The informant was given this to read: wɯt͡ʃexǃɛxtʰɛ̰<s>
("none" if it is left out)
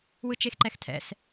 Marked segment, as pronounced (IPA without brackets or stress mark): s